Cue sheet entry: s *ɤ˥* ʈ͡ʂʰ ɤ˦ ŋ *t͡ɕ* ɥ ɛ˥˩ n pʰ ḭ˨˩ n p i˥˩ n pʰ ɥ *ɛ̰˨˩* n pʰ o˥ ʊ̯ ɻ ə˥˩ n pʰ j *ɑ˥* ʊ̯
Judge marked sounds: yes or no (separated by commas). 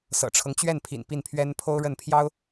no, yes, no, yes